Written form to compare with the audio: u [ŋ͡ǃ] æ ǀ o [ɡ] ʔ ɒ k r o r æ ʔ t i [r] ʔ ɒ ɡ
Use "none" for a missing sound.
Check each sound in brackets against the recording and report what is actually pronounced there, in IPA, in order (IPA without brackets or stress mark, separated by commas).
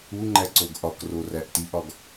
ŋ͡ǃ, ɡ, none